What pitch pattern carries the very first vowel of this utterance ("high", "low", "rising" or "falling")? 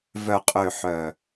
low